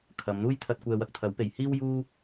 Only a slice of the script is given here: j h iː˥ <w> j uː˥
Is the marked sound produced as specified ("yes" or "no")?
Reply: yes